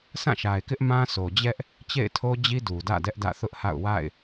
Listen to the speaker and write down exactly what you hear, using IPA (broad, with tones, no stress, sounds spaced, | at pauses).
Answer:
s ã˦˨ ʃ a˨ ɪ̯ k ɪ˦ ʔ m ã˦ s o˨ d͡ʑ ɛ˦ ʔ | t͡ɕ ḛ˦˨ ɪ̯ tʰ o˦ d͡ʑ i˦ d u˨ d ä̰˦˨ d ɛ˦ ʔ d ä̰˦˨ θ ʊ˦ ʔ h a̰˦˨ ʊ̯ w a̰˦˨ ɪ̯